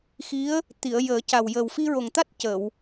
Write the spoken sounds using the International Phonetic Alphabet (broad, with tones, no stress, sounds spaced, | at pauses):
x i˧˥ ə̯ | t̪ i˨˩˨ ə̯ j əː˨˩˦ c a˨˩ w j ə˨˩ w f i˧ ɹ o˨˩ ŋ t̪ a˦˥ t̚ c ə˨˩˨ w